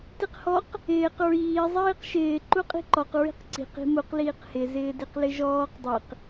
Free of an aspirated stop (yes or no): yes